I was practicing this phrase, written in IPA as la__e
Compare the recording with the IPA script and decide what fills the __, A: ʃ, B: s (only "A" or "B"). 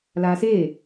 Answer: B